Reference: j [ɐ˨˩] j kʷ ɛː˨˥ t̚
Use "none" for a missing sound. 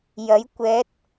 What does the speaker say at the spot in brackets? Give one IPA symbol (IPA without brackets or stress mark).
ɐ˨˥